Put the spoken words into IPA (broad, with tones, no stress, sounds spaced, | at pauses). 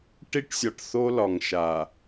ʈ i˦ ʈ sʲ ɒ˨ ʈ θ o˦ l ɒ˨ ŋ ʃ a˨